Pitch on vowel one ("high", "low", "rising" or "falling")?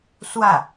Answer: falling